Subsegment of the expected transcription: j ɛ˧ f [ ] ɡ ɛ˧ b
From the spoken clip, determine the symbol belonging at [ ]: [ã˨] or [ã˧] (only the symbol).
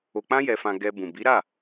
ã˧